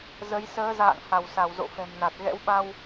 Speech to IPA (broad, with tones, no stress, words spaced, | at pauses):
zə˨˦j səː˨˦za̰ː˧˨ŋ ha˧˩wsa˧˩w zo̰˧˨fɛ̤˨˩mna˨˩t̚ ɣɛ̰˧˥wɓa˧w